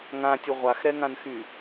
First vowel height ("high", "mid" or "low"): low